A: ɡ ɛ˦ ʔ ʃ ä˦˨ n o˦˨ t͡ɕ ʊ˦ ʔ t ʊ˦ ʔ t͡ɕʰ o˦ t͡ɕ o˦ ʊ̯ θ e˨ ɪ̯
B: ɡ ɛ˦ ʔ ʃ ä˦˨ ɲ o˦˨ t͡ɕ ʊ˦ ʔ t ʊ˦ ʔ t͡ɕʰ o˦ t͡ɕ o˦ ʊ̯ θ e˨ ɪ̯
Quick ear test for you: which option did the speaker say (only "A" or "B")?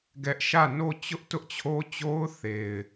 A